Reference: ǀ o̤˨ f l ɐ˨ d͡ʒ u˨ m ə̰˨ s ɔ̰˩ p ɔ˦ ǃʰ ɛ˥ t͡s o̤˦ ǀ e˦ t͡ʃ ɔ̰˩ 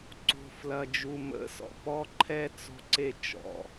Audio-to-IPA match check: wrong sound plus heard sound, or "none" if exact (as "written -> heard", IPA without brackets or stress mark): none